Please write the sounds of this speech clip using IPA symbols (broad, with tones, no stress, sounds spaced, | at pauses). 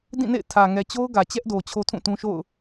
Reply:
d ĩ˦˨ n ḛ˦˨ ɪ̯ tʰ ä˨ ŋ ɛ˨ t͡ɕ o˦ ʊ̯ ɡ ä˨ t͡ɕ ɛ˦ ʔ d o˨ t͡ɕʰ o˦ tʰ ũ˦˨ t ũ˦ ʃ o̰˦˨ ʊ̯